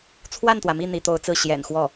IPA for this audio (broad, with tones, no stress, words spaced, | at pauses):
t͡sʰwa˥˩nt̪wä˩mi˥˩ n̪i˧˥t̪o˧˥ʊ̯t͡sɹ̩˥˩ ɕjɛ̰˨˩nxwɔ˥˩